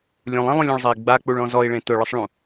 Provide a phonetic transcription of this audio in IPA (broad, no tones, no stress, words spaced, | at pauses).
lʲũlˠẽlˠũlʲ ũɭzˤei̯ɡ͡ba k͡puɭɔ̃zɔi̯ɭẽ tʊɭɪsˤɭũ